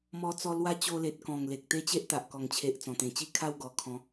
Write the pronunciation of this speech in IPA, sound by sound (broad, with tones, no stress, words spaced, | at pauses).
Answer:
mɔ˧t͡sɔ˧ lwa˦ t͡ɕo˧le˨t̚kɔ̃˨˩ŋ le˨k̚t̪e˦t͡ɕe˦ʔ t̪a˨ʔkɔ˨˩ŋt͡ɕʰe˨ʔ t͡sɔ̃˨˩t̪ẽ˨˩t͡ɕi˥˧ kʰa˥˧wɡɔ˨˩ kʰɔ̃˨˦